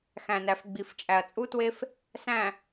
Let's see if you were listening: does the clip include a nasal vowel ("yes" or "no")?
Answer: yes